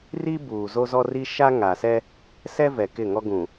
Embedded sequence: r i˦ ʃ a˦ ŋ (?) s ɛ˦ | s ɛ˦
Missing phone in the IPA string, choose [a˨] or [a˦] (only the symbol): a˨